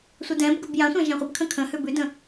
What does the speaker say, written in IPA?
sʷ ə d ɛ̃ b ɡ ə b j ã sʷ ã ʒ ã χʷ ə b kʰ ə̃ kʰ ə̃ h ʉ b ʉ d ə̃

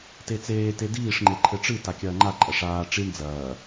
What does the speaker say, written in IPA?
t e t͡s eː t e d iː ʂ ŋ͡ǃ e ǃʰ ɘ ʈ͡ʂ ɨ t a kʲ ɐː ŋ͡ǃ a ǃʼ ɐ ʂ aː ʈ͡ʂ i ɳ d͡z ɐː

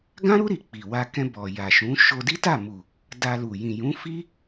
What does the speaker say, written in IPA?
ɡ ã˦ ɾ u˦ ɾ i˧ k͡p i˨ w a˧ k ɛ̃˧ b ɔ˨ j a˨ ʃ ũ˨˦ ʃ o˧ d i˦ t a˦˨ m u˨ | d a˧ l u˨ j ĩ˨ j ũ˨˦ f i˦

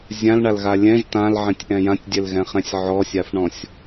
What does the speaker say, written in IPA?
zʲ ã l ɳ a l ɣ a lʲ ɛ̃ ʒ t ã l ʕ ɛ̃ tʲ ʔ ɛ̃ j ã tʲ dʲ ɛ l ɣ ɛ̃ χ ɛ̃ sʲ ʕ ɔ sʲ a f ɳ ɔ̃ sʲ

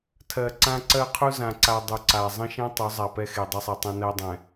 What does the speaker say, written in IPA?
tʰ ɜ˨ ǀ ã˦ ǀ ɜ˦ qʰ u˦ z ã˨ ǀ a˨ dˤ u˨ ǀ a˨ zˤ ə̃˦ ʃ ɛ̃˦ tˤ u˨˦ zˤ a˨ p ɛ˦ x e˨ dˤ ɪ˦ sˤ e˨ tˤ ɛ̃˦ n ɜ˦ dˤ ɛ̃˨

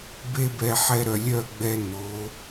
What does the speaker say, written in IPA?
b e˦ b ɛ˧ ħ ɛ˧ ɾ œ˨ lʲ œ˦˨ ɡ͡b ɛ˧ n o˨˦

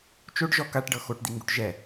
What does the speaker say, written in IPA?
t͡ʃ o ɖ ʒ ɔ k a ʈ ɖ ɤ x o ʈ d̪ i ŋ ɡ u ʈ ʒ ɛ

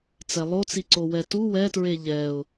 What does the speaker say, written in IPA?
t͡s ɛ lˠ o t͡s i ǀ o w ɛ t u w ɛ t ɹ e ʎ ɛ ʊ̯

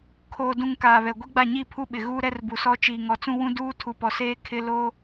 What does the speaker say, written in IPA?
kʰ oː˨ d ũ˨ ŋ k aː˨ β ɛ˨ ɡʷ i˦ ɡ͡b a˦˨ ɲ iː˦˨ pʰ u˦ ɓ ɪ˨ ɣ uː˦ ɾ ɛ˦ r b u˨ s ɔ˦ t͡ʃ iː˨ ŋ ɔ˨ t͡s ũ˦ w ũ˦ d uː˦ tʰ u˨ p ɔ˨ s eː˦ kʰ ɪ˦ l o˦

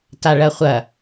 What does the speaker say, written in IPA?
t a ɭ ɐ χʷ ɐ

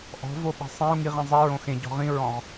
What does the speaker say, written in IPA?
ʔ ɔ̤ v o ɓ i̤ sˤ ĩ u̯ ŋ i ʁ ĩ zˤ i ɹ õ x ẽ ɟ ɔ̤ ʁ ĩ ɹ ɔ̃ ʁ

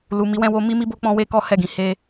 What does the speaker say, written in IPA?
l u˨ m i˨˦ w ɛ̃˧ w o˧ m i˦ m i˦ b o˦ k͡p ɔ̃˧ w e˧ k ɔ˦ h ɛ˦˨ ɡ ĩ˨˦ h e˧

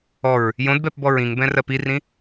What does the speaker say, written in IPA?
ɔ ɹ | j õ d b ɛ p b ɔ ɹ ĩ ŋ b ɛ̃ r ɜ p i r ĩ

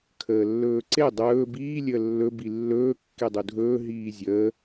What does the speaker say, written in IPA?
kʰ əː lː ɵː ǀ e dˤ ɵː b iː lʲ əː lː ɵ b i lː ɵː kː e dˤ u dʱ ɵː ɦ iː zʲ əː

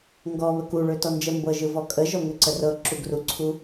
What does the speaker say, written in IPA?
ŋ ɡ ɔ β ə k u ɭ ø t ɔ n d͡ʒ ə m b ɤ ʒ ɯ v ɔ kʼ ə ʒ ɔ ŋ ø ǀ ə r ɤ ǁ u ɡ r u ǀʰ u

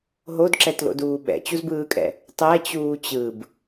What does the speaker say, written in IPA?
ɦ o d ǁ ɛ t l o̰ d uː ɓ ɛ̰ t͡ɕ u z b ɯː kʼ ɛ̰ | tˤ ɛ t͡ɕ uː t͡ɕ ɯ b

